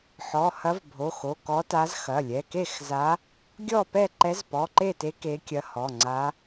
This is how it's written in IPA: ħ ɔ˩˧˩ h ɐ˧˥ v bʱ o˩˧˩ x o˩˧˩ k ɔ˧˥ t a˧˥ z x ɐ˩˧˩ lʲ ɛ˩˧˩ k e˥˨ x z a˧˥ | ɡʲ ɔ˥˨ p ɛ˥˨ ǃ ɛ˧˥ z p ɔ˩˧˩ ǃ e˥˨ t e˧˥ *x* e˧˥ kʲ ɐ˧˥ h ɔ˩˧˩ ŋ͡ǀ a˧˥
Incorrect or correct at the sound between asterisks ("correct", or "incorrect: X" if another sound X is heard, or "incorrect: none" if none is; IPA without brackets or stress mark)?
incorrect: k